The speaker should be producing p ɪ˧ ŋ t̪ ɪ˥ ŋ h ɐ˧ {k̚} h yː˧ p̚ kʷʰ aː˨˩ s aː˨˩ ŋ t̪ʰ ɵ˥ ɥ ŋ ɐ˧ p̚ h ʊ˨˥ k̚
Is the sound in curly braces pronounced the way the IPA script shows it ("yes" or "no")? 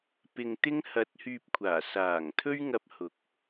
no